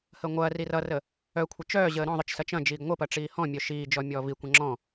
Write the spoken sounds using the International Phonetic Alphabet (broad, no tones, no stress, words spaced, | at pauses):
həŋʷɐː rirʌrə | œkʷʰə t͡ʃœːʑəː ɾɔ̃ðˤɯt͡ʃsɐ t͡ʃɐ̃d͡ʒiːɡ ŋʷəpɐ ʈ͡ʂiːhɔ̃mʲœ ʃiːd͡ʒɔ mʲɔːvikʷɐ̃ ŋ͡ǁɔ̃